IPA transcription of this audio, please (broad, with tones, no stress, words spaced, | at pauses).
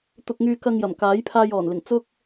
t̪ʊ˧k̚ŋyː˧ kɐ˧ŋ jɐ˨˩mkaː˨˥jpʰaː˧j ɔː˨˩nlɪ˨˩ŋ t͡sʊ˥k̚